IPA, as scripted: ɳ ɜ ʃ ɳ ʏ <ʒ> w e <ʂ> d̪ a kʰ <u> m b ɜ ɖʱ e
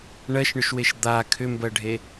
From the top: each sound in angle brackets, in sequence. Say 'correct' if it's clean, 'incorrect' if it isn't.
incorrect, incorrect, incorrect

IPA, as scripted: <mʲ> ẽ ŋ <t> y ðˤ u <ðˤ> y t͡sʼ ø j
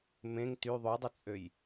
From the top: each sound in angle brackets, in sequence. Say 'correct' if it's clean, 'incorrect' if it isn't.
incorrect, correct, incorrect

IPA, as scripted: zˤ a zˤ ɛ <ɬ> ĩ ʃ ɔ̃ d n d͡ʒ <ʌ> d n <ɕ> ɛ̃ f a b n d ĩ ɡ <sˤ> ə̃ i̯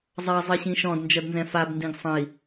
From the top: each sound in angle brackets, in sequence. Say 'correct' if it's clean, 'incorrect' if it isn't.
incorrect, correct, incorrect, correct

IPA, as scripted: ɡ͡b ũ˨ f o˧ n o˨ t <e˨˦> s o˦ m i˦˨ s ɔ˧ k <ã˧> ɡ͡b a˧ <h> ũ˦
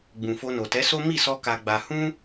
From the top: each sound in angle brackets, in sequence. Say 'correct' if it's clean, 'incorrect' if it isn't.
incorrect, incorrect, correct

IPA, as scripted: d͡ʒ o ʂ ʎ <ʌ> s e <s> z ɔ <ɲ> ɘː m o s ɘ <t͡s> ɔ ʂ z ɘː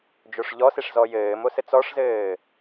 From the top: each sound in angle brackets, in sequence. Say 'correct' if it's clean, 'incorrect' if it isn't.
incorrect, incorrect, incorrect, correct

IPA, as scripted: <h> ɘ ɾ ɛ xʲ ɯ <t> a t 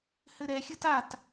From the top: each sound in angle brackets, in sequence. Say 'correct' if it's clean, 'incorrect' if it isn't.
correct, correct

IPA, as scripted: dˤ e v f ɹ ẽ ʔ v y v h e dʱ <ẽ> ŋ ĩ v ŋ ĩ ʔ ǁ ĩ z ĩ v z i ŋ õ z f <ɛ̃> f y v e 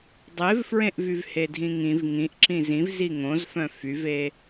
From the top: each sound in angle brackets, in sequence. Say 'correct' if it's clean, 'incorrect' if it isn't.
incorrect, incorrect

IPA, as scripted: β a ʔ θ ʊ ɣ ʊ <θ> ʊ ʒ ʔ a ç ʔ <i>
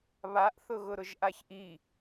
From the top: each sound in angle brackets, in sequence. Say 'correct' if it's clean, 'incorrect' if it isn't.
incorrect, correct

